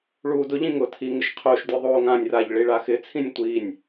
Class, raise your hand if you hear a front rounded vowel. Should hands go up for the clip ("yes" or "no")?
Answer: no